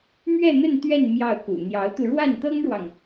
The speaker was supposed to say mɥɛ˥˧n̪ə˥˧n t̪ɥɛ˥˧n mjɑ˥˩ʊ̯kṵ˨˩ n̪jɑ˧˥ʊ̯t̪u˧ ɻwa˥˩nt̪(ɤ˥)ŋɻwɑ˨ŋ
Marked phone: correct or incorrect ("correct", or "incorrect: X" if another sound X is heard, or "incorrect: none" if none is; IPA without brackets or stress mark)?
correct